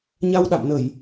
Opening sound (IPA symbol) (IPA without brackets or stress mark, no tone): ɲ